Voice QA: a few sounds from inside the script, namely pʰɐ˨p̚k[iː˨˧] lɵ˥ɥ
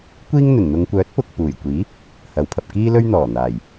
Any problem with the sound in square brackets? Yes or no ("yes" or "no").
yes